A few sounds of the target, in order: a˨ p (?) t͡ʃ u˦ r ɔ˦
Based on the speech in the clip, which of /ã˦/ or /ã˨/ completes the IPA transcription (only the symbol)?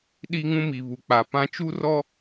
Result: ã˦